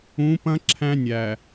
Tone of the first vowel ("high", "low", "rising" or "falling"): rising